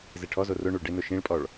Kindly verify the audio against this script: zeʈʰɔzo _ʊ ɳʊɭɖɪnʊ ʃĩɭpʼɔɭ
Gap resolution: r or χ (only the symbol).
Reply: r